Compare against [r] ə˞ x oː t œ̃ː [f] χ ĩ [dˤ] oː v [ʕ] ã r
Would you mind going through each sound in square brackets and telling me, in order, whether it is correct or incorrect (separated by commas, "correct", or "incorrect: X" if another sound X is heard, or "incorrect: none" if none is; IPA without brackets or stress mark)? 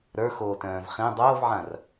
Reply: incorrect: ɾ, incorrect: v, correct, correct